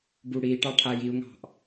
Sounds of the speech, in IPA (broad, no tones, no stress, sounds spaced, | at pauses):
b u ɽ i ʈ ɑ ʈʰ a j i u̯ ŋ ɑ̤ ʔ